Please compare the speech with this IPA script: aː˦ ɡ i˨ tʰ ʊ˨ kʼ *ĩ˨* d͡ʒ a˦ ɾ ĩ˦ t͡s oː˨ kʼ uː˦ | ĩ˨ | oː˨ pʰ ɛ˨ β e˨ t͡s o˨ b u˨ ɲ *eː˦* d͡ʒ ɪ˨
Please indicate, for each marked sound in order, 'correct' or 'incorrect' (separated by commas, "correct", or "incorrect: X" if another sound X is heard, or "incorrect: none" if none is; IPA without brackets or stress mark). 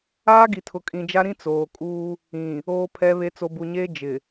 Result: correct, correct